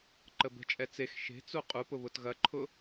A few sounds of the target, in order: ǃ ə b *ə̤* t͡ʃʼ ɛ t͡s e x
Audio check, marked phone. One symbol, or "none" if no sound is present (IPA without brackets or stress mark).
ə̤